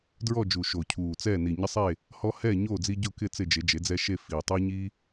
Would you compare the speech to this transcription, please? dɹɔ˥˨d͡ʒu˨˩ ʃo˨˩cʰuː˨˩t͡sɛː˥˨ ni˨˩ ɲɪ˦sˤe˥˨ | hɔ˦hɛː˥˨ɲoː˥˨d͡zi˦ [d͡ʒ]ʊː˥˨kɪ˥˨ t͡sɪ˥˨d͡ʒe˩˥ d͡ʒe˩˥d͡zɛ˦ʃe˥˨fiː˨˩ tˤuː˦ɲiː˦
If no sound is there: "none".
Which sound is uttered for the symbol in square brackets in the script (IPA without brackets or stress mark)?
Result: ɟ